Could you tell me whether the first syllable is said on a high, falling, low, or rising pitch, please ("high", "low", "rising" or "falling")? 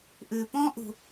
low